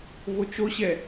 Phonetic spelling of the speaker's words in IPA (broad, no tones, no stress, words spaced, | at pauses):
vot͡ʃoɕɛ